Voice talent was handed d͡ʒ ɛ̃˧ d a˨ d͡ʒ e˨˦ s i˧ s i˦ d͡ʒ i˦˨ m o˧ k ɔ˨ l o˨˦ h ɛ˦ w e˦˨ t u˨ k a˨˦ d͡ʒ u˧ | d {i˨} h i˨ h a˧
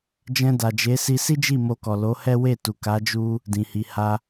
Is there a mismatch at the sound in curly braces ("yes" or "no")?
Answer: yes